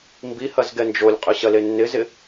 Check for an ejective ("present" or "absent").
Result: present